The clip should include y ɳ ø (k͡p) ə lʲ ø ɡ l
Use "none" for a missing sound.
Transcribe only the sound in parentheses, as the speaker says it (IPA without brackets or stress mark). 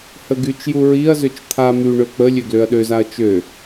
k͡p